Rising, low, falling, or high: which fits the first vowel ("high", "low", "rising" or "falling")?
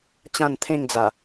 falling